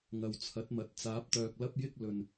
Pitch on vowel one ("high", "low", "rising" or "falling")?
low